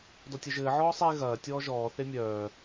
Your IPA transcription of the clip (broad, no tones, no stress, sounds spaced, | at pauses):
d ɔ tʲ ɐ ʒ ɘː ʕ ɔː sˤ e ɣ ɐː tʲ ɔː ʒ ɔː θ e mʲ œː